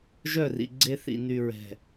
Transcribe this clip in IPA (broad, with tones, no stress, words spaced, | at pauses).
ʒœ˦˨rḭ˨ɡ͡ǀe˦ θḭ˨ny˨ɹɛ̤˨